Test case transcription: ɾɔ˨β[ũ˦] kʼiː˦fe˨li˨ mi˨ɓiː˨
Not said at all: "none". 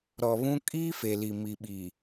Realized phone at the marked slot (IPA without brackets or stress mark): ũ˦